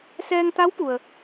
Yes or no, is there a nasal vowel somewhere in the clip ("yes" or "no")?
no